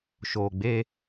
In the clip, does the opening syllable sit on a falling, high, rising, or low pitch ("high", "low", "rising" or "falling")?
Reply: low